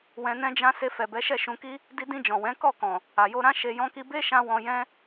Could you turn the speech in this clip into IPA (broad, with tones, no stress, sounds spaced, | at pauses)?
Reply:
w ɛ̃˧ n ɛ̃˦ d͡ʒ ã˦ s e˧ f ɛ˨ b ɛ˨˦ ʃ ɛ˦˨ ʃ ũ˧ k i˦ | d i˧ d ĩ˧ d͡ʒ ɔ̃˨ w ɛ̃˨˦ k ɔ˦˨ k ɔ̃˨ | a˨ j o˧ ɾ ã˦ ʃ e˧ j ɔ̃˧ k i˧ b e˦ ʃ ã˧ w ɔ̃˧ j ɛ̃˦